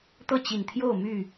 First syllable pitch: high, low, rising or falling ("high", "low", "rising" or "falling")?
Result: falling